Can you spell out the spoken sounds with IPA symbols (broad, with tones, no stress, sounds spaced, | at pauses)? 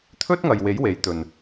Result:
t̪ʰ ɵ˥ t̚ ŋ ɐ˨ j w e˨˥ j w e˨˧ j t̪ ɵ˨ n